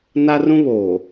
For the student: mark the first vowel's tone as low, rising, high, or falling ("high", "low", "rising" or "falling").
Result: high